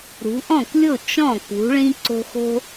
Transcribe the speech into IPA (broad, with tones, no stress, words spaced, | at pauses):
ɾṳ˨˦ ʔɔ̃˥˩klʲo˥˩ t͡ʃɔ̃˥˩kṳ˨˦ɭĩ˦ ǀo̤˦xo̤˦